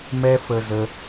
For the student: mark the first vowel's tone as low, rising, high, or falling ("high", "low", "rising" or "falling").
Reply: high